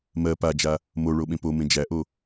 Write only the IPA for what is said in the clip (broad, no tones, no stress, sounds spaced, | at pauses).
m ɜ p a d͡ʒ a | m o ɭ o ɓ ẽ p o m ẽ d͡ʒ æ ʔ o